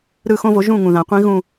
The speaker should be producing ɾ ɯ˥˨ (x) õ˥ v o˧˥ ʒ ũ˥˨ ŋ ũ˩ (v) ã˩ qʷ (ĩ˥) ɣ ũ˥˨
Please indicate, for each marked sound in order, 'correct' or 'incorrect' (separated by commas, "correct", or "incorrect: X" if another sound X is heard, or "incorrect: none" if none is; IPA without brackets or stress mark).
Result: correct, incorrect: ð, correct